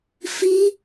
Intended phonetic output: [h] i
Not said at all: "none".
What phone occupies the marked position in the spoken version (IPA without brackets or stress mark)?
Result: f